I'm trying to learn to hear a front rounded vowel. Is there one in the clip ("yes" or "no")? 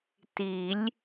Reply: no